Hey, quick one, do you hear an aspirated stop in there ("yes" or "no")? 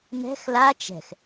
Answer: no